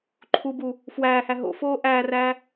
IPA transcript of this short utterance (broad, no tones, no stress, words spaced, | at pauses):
ǃʰubu | fwæːhæ ɦo̰ foːʔæːræː